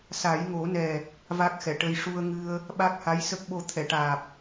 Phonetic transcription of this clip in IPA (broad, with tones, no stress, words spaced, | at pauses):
sa˨˩˦jŋo˨˩˦nɛ˨˩ | va˦˥k̚xɛ˨˩˨ʈə˧j ʂu˧ə̯ŋɨ˧ə̯ | ɓa˦˥k̚ha˧˥jsə˦˥k̚ɓo˧ t̪ʰɛ˨˩˨ʈaː˨˩p̚